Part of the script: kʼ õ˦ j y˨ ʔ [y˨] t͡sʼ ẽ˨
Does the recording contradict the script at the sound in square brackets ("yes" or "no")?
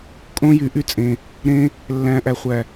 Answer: yes